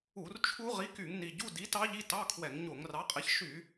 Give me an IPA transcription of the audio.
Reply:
u˧˩˧rt͡ʃʰu˦˥ ʁi˨˥ky˧˩˧ŋni˨˩ ɟu˧˥˧di˨˥ tɑ˦˥ʎi˧˥˧tɑ˧˥˧ kʰwɛ˧˩˧ŋ ɲo˧˩˧ŋrɑ˨˥qʼɛ˨˥ç ʃy˧˩˧

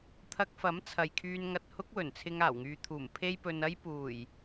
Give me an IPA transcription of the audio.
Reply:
t̪ʰɐ˧k̚fɐ˨˥m t͡sʰɐ˨jkʰyː˧n ŋɐ˧t̚hʊ˥k̚ wɵ˨˩nt͡sʰɪ˧ŋ aː˨˩wŋyː˨t̪ʰuː˨˩m pʰe˥jpɵ˧nɐ˥j puː˨˩j

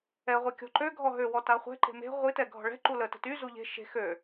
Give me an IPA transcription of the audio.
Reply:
ɛʁʷe kʲɔ̤ǃøɡʱɔɦø wɔtaχʷɛ̤ ǃe̤me̤ ʁʷitɛ ɡʱɔ̤ɭɛ̤ ǃulə tə̤ty zuʎe̤ ʃe̤ xø

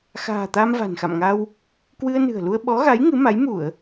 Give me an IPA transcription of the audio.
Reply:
xa̤ː˨˩ t̪aː˧mva̤˨˩nxa̰˧˨mŋa˧w | kwɨ˧ə̯nɨ̤˨˩ə̯lu˧ə̯ ɓɔ˨˦ɣa˨˦j ŋɨ˨˦ma˨˦j mu˧˩˨ə̯

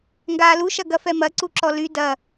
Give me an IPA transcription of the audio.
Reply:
ŋɡaːlu ʃɐɡɐfɛmɐ ǀuǁɔly dɐ

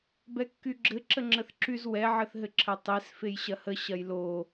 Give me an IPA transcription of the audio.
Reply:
bɛkːyɡ͡ǁɘ ǁəŋ͡ǁəθǁyz wɛ ʕəθɦɘǁʰətˤes fejɕɐhə ɕɐjlo

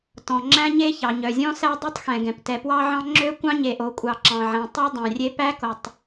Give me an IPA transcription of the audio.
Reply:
tɔ̃˩ ŋ͡ǁæ̃˥ɲe˥ çɑ˩ɲœ˩zʲɔ̃˥ sæ˥dˤʉ˥tˤxɛ̃˩ɡɛ̃˩p tɛ˩pwɑ˥ʕɑ̃˥ ŋ͡ǁø˥kʷɑ̃˥ ɲe˩ʔo˩kʷʼɑ˩ ǁɑ̃˩ʕæ̃˩tˤɑ˥ dˤæ̃˩rʲe˥ pæ˥ko˩tˤ

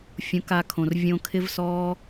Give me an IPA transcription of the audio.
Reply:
fʲũ˨˦ka˧kʰõ˨r vʲõ˧kʰɪ˦vsɔː˦

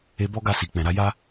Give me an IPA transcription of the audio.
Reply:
e˧ bɔ˦ɡa˦˨si˨ k͡pɛ̃˨ɾa˨˦ja˦

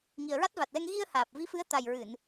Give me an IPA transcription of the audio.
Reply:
ŋi˨˩ə̯ɹa˦˥t̚va˨˩t̚lɛ˧ŋ ɣi˧ə̯haː˨˩p̚ vi˧˥fɨ˧˥ə̯ t̪a˨˩jɹɨ˨˩˨n

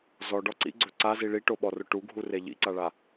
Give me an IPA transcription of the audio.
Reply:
zɔɖɔ ǀḭɡ͡ǀɵ ǀazi ɭiʈoɓɔrʊ ʈuɡʱure ʎḭǀaɭa

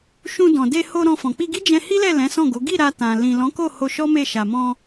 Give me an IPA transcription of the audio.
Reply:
ʃũ˧ dɔ̃˨ de˧ho˧ ɾɔ̃˧fɔ̃˨ k͡pi˧ɡi˦ d͡ʒɛ̃˧hi˦lɛ˦˨ lɛ̃˨˦sɔ̃˦˨ɡo˨˦ ɡi˦˨ ɾa˧tã˨ lĩ˨lɔ̃˨˦ko˦˨ ho˧ʃɔ˦me˦˨ ʃa˨mɔ̃˧

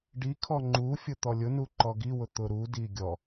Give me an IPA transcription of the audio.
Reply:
ɖikʰɔ ŋ͡ǃufʲʊ t̪ɔlʲʊnu ǃɔɡiwʊ t̪ʊɾudi ɡʲɔ

